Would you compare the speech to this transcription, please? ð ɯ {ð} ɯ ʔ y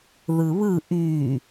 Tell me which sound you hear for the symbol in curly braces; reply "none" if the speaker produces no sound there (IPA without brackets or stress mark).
β